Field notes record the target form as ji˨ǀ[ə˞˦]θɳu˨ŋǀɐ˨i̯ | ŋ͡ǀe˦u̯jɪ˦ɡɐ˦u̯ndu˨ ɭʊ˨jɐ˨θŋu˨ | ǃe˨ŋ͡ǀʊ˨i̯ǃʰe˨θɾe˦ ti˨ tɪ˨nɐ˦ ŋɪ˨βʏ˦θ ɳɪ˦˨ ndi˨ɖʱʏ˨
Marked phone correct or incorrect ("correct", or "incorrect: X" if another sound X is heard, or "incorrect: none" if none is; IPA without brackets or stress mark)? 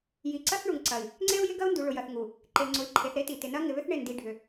incorrect: ɐ˦